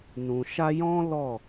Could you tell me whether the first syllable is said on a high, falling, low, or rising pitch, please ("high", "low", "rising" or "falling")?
low